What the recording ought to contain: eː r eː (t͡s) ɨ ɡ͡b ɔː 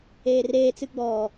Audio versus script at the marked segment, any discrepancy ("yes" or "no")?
no